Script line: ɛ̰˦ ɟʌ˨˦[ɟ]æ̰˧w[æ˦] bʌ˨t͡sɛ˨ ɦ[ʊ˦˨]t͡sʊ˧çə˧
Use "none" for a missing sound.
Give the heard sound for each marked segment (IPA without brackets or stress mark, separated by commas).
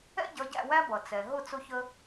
ɟ, æ˦, ʊ˦˨